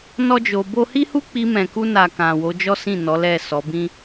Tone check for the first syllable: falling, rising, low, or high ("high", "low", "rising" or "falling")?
high